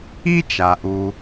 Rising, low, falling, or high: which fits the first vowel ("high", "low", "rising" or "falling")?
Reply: high